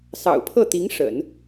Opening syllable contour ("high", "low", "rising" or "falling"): low